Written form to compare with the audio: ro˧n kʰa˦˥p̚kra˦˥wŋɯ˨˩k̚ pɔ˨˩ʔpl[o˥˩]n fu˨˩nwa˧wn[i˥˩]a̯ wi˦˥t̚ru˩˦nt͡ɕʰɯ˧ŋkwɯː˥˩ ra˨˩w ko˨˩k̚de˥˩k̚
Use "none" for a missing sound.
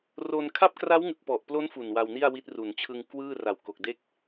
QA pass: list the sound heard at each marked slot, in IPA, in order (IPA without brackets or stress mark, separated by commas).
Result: o˦˥, i˥˩